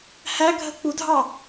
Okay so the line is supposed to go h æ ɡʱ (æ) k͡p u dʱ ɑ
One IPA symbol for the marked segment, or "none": ə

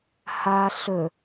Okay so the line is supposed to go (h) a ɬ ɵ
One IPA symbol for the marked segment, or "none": h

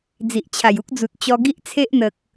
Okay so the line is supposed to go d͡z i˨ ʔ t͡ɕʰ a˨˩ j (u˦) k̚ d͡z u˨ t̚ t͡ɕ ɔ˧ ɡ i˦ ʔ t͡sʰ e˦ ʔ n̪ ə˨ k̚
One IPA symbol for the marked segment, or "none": u˦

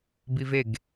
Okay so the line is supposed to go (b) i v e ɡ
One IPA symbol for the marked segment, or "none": b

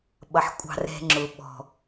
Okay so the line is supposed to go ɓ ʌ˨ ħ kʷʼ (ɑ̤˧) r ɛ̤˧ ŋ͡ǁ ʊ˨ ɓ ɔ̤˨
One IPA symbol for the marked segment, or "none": ɑ̤˧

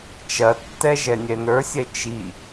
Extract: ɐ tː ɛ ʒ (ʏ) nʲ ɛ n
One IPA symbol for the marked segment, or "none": ɛ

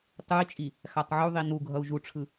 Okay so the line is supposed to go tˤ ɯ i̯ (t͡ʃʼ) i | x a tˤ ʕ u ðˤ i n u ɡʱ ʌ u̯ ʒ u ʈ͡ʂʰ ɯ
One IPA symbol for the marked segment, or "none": t͡ʃʼ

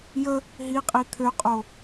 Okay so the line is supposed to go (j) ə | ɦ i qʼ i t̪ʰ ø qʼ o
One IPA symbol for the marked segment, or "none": j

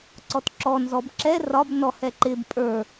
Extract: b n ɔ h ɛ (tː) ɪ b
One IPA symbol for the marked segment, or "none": ǃ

